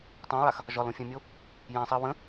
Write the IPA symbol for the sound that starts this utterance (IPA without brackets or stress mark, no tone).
tˤ